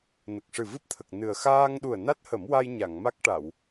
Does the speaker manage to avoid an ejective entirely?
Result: yes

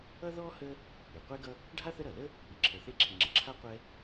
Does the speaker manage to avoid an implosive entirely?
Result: yes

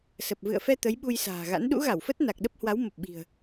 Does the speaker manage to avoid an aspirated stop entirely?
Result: yes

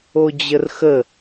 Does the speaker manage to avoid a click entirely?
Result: yes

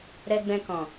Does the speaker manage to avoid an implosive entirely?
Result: yes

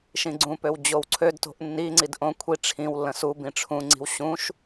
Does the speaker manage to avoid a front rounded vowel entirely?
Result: no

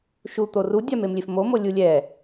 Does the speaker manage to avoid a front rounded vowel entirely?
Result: yes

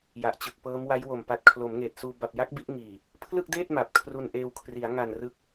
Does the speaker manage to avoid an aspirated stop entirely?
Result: no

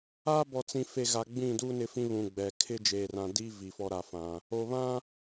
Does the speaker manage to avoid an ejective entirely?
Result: yes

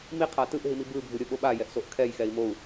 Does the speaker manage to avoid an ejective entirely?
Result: yes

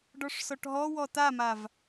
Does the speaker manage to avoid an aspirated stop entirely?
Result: yes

